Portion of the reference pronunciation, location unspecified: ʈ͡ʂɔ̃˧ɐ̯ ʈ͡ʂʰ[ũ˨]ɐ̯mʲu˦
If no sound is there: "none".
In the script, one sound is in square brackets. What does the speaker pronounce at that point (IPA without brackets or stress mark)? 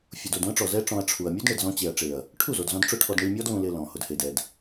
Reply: u˨